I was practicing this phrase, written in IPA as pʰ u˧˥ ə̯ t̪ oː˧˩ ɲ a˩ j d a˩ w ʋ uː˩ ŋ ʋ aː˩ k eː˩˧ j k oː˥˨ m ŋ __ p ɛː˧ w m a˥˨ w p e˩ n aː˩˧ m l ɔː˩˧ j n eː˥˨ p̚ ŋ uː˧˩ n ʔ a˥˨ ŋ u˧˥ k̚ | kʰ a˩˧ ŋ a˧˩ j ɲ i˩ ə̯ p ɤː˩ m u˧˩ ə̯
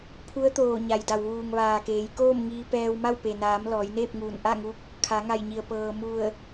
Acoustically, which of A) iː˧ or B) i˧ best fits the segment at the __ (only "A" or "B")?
A